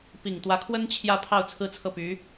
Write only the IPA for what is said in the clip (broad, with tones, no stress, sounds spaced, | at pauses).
p i˨˩ ŋ t̪ w ä˧˥ kʰ w ə˥ n t͡ɕʰ j ä˥ pʰ ɑ˥˧ ʊ̯ t͡sʰ ɹ̩˥˧ t͡sʰ ɤ˥˩ p y˧˥